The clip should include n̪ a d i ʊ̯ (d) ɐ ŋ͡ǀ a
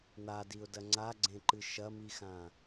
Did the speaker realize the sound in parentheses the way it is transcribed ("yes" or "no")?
yes